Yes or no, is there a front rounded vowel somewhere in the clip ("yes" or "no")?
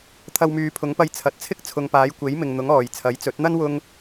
yes